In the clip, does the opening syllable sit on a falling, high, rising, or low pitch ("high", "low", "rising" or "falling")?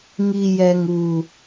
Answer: low